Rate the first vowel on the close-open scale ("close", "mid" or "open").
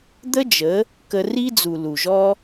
mid